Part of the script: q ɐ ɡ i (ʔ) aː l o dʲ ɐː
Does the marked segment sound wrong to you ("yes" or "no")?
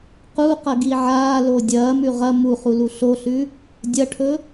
yes